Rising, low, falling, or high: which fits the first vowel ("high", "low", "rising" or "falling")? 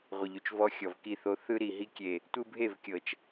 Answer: low